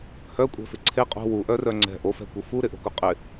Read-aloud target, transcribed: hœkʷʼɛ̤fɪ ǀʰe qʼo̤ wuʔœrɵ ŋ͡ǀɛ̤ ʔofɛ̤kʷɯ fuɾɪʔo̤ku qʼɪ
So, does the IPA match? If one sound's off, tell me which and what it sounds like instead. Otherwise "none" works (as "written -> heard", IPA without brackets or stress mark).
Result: ɵ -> œ